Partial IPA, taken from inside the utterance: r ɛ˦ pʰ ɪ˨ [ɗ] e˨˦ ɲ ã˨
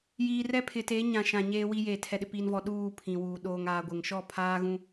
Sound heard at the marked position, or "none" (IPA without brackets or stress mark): t